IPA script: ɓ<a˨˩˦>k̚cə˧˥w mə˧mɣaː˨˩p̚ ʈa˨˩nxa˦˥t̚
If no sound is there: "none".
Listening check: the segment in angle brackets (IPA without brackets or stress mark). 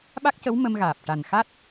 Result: a˦˥